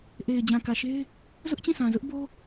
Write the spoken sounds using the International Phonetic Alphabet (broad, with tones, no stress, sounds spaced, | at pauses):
ʔ e˨ ɪ̯ d͡ʑ ã˨ k ä˨ ʃ e˦ ɪ̯ | z ʊ˦ ʔ t͡ɕ ĩ˦˨ s ã˨ z ʊ˦ ʔ b o˦